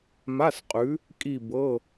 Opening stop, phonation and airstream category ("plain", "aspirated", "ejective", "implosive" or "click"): ejective